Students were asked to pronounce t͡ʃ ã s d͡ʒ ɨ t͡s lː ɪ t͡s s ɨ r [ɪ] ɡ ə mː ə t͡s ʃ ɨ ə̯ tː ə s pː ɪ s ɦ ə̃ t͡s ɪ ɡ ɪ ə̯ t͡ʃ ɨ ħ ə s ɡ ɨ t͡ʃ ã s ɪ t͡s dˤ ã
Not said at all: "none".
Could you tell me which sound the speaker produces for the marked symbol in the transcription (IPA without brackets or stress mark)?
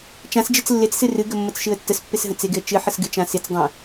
ɨ